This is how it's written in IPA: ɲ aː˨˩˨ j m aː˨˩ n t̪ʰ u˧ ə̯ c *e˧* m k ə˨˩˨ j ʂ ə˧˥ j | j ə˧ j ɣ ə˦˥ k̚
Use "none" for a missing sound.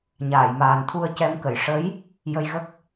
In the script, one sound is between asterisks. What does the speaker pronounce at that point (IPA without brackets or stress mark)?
ɛ˧